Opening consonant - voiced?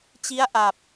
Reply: no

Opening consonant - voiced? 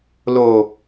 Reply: yes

